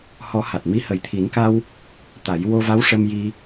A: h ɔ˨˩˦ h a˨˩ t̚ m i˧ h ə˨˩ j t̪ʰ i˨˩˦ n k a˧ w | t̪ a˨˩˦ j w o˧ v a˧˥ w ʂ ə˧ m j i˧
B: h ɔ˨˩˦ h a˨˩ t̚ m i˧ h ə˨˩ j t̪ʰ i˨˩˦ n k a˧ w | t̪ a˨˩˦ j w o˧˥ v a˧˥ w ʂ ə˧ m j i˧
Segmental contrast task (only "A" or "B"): A